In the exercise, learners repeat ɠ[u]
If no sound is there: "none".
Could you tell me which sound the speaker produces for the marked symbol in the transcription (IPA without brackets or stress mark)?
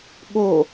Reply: o